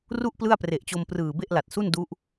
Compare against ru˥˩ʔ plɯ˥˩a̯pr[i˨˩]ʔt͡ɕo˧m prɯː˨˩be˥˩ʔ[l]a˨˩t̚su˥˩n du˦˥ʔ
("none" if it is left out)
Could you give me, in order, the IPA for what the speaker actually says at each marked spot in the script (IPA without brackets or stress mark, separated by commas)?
e˨˩, l